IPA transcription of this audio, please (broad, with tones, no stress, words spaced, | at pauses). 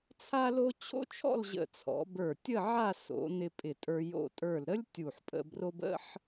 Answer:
t͡sʰa˥lo˥ t͡ɕʰo̰˥t͡ʃʰɔ̰˥˧lʑə̰˧˩ t͡sʰɔ̰˩˧bə˞˧˩ tʲə˥˧ʕa˥˧ so̰˩˧nɪ˧ pʼɪ˧˩tʼə˞˧ jo̰˧˩tʼə˞˧˩lɾə˥lʲ tʲu˧˩ħpʼə̰˧bro˥b ə̰˥ħ